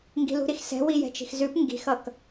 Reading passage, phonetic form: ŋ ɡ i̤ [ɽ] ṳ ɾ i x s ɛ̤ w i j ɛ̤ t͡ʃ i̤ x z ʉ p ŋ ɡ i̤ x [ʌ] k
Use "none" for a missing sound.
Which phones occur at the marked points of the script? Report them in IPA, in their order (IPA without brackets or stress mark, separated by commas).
l, ʌ